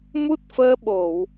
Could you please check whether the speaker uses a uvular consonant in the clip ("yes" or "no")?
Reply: no